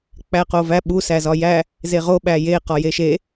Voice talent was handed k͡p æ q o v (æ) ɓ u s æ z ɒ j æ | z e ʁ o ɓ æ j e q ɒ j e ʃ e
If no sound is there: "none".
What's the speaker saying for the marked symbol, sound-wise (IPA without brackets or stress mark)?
æ